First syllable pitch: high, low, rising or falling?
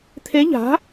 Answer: rising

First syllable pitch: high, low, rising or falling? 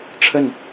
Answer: falling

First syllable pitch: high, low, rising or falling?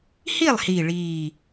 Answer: falling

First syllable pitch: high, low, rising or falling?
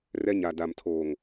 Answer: high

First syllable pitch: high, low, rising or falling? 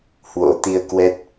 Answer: rising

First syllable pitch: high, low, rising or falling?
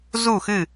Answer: falling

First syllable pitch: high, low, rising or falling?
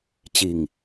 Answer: low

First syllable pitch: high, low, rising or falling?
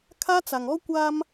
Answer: high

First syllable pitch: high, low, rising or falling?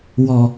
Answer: low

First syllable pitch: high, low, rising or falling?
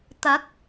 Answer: rising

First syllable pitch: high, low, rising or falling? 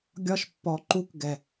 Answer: high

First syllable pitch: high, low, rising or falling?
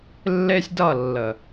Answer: high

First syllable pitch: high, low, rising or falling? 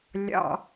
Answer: high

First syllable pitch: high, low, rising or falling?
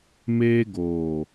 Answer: high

